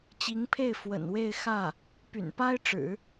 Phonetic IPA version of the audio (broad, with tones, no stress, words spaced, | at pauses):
t͡ɕi˧˥ŋpʰe˥˩ɪ̯ fwə̰˨˩nwe˥˧ɪ̯xä˥˩ | py̰˨˩npa˥ɪ̯ʈ͡ʂɻ̩˨˩˦